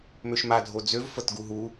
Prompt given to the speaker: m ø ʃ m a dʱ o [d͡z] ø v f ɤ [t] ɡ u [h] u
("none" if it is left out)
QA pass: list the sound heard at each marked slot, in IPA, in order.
d͡z, t, ɦ

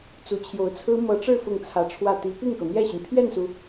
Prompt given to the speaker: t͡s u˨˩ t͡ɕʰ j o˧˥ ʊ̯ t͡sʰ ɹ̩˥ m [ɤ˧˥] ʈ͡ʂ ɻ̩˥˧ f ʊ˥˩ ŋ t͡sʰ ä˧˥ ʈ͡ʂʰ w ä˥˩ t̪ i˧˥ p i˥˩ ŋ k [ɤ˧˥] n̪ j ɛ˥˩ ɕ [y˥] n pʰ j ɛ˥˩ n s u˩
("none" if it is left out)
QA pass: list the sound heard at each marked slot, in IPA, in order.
ɤ˧˥, ɤ˩, y˩

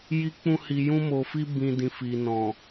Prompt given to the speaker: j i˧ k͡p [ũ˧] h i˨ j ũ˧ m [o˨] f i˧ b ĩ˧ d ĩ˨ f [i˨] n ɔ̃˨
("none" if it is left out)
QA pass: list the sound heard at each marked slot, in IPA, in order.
ũ˧, o˨, i˨

